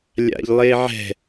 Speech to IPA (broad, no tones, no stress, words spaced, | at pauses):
lʲa̰ʎlˠeʕɛ̤